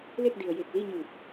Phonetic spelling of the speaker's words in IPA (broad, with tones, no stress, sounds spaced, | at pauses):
l e˥˨ k̚ d i˩ ə̯ j e˧˩ k̚ l i˥˨ ɲ ɯː˧˩ p̚